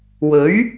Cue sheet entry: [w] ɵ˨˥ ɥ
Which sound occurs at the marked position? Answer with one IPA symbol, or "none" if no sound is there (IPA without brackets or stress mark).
w